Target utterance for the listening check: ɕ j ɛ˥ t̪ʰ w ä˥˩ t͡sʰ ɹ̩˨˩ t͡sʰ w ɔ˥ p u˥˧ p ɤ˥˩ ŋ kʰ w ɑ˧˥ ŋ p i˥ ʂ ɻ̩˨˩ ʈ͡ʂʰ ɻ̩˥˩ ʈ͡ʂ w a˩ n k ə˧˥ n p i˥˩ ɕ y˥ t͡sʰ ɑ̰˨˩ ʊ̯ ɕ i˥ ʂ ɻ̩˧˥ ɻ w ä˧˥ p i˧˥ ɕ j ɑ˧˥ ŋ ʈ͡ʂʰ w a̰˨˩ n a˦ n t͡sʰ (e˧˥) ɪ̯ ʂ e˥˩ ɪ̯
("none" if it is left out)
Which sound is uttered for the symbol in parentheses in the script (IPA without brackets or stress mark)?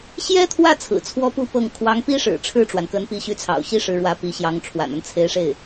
e˧˥